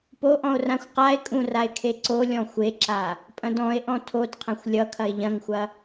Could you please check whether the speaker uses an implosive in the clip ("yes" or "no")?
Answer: no